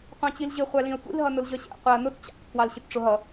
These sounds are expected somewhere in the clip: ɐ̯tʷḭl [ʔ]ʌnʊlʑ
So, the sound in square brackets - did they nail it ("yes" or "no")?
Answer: no